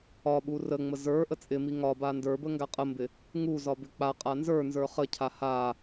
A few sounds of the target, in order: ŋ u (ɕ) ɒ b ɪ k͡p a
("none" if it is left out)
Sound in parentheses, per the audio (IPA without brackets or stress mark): z